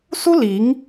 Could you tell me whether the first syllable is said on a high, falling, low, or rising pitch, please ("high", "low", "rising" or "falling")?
high